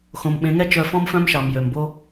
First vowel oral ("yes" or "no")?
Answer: no